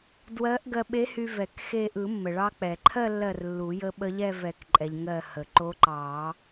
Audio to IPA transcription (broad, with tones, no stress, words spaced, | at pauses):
dwɜ˧˥ʔ ɡɜ˧ɓe˧˥hy˧ vɛ˨˩˦kxe˥˧ ʔɯ˨˩˦mːə˩ ɭɑ˧k͡pɛ˩ǃʰɜ˥˧lːɜ˧˩r lːu˨˩˦jə˧˥ ɓə˧˥ʎɛ˥˧vɛ˨˩˦kǃʼɛ˩ʎ ŋɜ˧˩hə˩ ǃo˧˥ǃɑ˨˩˦